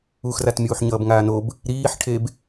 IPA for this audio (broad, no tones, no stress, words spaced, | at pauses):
uxrat mʲuːħɲʌːbŋaːnob | ɾiːħʈʰeb